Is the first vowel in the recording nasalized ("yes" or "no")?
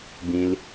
yes